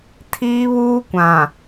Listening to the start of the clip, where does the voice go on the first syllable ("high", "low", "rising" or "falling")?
high